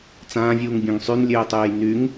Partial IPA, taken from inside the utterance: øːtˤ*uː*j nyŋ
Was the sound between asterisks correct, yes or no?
no